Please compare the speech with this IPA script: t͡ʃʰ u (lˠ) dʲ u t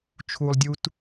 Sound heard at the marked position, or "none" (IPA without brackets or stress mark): lˠ